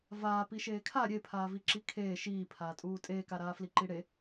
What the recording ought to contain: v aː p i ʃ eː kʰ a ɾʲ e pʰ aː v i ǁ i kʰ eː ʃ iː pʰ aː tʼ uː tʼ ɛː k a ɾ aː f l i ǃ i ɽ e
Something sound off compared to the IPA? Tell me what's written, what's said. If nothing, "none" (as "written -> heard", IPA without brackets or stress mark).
ɛː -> eː